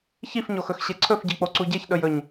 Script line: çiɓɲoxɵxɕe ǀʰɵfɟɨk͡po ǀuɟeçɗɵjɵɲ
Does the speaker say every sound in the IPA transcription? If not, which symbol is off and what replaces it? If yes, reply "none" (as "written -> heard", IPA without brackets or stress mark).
ɓ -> f